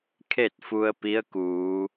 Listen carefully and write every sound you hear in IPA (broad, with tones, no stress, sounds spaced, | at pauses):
kʰ e˥˨ t̚ f u˧ ə̯ p i˧˥ ə̯ k uː˩˧